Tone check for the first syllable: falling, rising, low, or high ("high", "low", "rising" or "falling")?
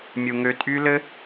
high